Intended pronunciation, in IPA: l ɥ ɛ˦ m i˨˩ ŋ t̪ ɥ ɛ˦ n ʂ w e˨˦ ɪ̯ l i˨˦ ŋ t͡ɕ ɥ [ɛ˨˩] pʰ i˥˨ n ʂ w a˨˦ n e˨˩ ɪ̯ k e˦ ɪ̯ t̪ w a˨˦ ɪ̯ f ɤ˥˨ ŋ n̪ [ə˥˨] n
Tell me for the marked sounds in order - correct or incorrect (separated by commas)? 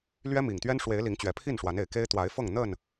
correct, correct